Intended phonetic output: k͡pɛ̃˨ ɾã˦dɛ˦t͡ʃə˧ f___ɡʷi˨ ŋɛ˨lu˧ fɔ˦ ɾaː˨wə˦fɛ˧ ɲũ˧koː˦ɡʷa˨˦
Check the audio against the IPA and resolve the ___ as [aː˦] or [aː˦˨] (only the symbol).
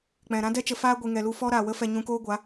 aː˦